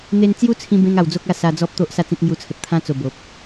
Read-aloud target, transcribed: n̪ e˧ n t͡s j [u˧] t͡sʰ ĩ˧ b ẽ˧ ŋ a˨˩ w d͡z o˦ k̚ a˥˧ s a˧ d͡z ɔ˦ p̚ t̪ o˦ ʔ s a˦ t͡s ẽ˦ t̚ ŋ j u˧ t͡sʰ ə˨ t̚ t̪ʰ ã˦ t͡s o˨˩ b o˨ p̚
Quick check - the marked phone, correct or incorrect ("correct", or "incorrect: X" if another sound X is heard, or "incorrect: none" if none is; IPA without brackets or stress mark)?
incorrect: u˦